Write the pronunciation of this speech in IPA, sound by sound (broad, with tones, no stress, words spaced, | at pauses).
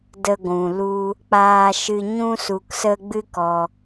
də˧ɡʷũ˨lu˦ | k͡paː˧ʃɨ˧ ɲũ˧su˨ksə˧ ɡ͡bɨ˦kɔ˧